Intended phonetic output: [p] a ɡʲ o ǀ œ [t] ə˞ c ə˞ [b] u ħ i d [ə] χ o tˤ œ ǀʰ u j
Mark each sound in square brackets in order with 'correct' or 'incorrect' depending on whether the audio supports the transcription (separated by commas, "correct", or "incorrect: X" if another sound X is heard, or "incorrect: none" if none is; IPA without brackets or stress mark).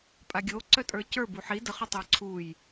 incorrect: pʼ, incorrect: tʼ, correct, correct